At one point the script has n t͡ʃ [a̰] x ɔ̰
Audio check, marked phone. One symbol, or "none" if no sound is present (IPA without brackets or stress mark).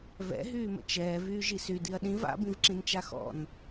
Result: a